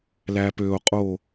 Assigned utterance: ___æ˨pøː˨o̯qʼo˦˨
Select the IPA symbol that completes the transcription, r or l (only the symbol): l